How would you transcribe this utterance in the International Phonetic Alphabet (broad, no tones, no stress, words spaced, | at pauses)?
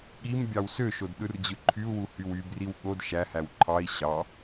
ɠim bʲɑwsøʃod ɗɯrd͡ʑɯǃʰyu̯wu hywybriw ɠod ʃæhæw ǃʰɑi̯ ɕɑ